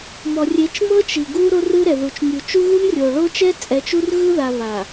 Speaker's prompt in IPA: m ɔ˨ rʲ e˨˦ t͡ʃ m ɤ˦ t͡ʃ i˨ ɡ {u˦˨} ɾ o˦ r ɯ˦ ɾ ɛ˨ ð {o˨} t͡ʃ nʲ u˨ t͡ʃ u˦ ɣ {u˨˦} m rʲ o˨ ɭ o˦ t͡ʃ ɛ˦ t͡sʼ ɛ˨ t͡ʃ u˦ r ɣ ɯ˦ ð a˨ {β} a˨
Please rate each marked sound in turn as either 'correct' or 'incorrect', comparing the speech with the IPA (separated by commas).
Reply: incorrect, incorrect, incorrect, correct